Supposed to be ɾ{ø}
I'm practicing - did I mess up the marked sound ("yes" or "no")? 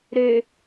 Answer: no